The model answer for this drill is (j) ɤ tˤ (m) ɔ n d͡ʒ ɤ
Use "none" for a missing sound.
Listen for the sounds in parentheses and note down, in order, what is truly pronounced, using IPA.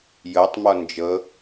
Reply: j, m

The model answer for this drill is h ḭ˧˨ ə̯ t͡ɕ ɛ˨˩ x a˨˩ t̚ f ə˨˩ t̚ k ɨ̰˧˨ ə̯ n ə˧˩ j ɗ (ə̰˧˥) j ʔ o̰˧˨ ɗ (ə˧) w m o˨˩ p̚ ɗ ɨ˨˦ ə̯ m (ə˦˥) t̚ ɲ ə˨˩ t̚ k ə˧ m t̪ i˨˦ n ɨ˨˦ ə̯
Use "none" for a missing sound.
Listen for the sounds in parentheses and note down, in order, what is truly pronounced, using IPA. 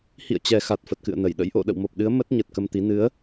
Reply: ə̰˧˥, ə̰˧˨, ə˦˥

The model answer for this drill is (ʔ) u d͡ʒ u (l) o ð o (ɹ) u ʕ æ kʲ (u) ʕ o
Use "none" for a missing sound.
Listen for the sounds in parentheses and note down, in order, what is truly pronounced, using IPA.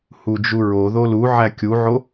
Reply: h, ɹ, l, u

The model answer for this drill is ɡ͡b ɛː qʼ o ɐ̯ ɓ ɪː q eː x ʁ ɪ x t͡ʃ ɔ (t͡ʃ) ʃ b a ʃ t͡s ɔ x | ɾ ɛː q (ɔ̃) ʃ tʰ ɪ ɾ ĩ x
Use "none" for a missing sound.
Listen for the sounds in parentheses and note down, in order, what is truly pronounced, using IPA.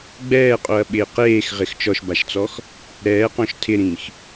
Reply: none, ɔ̃

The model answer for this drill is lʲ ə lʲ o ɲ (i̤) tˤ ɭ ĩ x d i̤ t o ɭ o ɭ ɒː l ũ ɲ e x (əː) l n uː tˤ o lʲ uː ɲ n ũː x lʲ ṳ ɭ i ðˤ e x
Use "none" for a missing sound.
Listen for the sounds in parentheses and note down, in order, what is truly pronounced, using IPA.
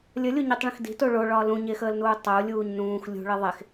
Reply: i, əː

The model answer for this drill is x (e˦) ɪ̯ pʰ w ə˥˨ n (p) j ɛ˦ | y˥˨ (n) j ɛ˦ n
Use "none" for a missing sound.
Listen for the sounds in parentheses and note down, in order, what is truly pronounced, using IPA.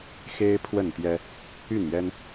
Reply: e˦, t̪, n

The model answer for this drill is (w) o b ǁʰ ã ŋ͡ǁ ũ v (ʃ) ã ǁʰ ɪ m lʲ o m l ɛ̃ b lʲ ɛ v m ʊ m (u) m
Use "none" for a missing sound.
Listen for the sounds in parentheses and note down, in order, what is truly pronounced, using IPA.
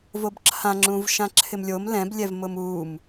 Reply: v, ʃ, u

